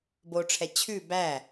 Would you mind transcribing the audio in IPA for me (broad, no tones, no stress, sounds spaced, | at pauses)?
b o ʈ͡ʂʰ ɛ t͡ɕʰ ʉ b æ